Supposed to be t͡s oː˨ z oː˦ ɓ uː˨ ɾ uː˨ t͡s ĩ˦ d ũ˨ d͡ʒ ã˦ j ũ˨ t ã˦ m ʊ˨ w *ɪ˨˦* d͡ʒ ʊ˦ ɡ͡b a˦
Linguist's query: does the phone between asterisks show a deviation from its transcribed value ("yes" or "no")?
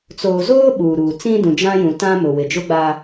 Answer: yes